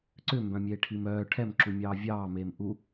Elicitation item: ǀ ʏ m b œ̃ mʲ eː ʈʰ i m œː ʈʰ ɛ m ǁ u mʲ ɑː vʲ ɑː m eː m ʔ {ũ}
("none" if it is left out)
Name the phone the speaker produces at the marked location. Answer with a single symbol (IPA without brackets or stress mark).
u